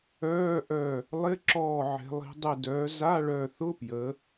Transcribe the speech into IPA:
œː˧˥˧ ʔ œ˧˩ | lˠ ɪ˧˥˧ ǁ ɔː˧˩ ʕ e̤˩˧ lˠ i̤˩˧ dˤ ɪ˧˩ d œː˩˧ z a˧˥˧ ɭ œ˧˩ θ ʊ˧˥˧ p j ə˩˧

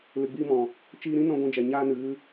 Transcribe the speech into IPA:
l ɨ˨ ɡ͡b iː˧ m ɔ̃˨ | t͡ʃ iː˧ ɾ ĩ˦ n ɔ̃˦ ɡʷ ĩ˧ d͡ʒ ɛ˨ ɲ aː˧ n ɨ˨ ɣ ɨ˧

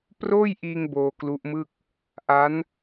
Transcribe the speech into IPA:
p r oː˥˩ j ʔ iː˧ ŋ b oː˧ k l u˦˥ ʔ m ɯ˥˩ k̚ | ʔ a˦˥ n

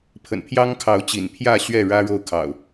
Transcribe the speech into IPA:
pʰ ə̰˨˩ n pʰ j ɑ˦ ŋ kʰ ɑ˨˦ ʊ̯ t͡ɕ ḭ˨˩ n pʰ j ä˥˨ ɕ ɥ ɛ˥˨ ɻ ä˦ ɻ o˥˨ ʊ̯ kʰ ɑ̰˨˩ ʊ̯

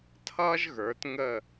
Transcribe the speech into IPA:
tʰ ʌː˥ ʒ ɣ ə˞˩˧ t ŋ ə˧˩

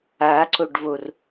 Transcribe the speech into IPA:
a ǀ o ɖ v o r

